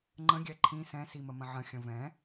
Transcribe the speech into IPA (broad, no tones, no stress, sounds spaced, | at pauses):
ŋ͡ǃ ə̃ ɡʲ ɛ ǃʰ ĩ s ɛ̃ s i m ə m ə̃ ʕ ə̃ xʲ ə̃ v ɛ̃